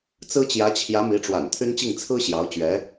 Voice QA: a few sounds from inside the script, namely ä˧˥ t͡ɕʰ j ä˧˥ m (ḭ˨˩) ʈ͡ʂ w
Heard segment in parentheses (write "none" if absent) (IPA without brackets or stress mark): i˧˥